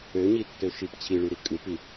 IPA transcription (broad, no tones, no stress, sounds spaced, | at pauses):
ø ɲ i tː ø ʃ i p t͡ɕʰ i ɭ y ɾ i kʼ ɯ p i